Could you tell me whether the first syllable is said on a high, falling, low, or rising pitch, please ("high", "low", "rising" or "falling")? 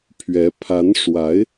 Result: rising